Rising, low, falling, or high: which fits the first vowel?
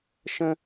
high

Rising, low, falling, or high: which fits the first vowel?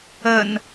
low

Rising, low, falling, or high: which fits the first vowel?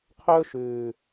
high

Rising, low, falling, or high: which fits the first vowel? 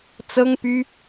high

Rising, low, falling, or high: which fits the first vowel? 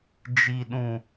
high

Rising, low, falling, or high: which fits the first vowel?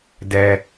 low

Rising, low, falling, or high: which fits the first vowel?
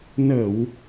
low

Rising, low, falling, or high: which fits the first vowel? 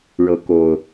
rising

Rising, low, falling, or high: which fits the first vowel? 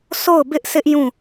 falling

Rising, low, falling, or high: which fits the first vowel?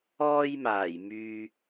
high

